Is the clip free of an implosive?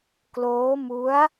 yes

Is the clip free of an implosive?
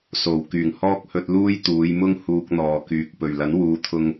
yes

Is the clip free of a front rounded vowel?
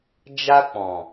yes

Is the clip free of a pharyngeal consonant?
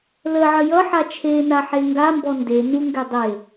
no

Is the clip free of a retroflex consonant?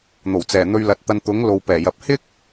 yes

